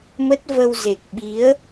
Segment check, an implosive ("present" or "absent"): present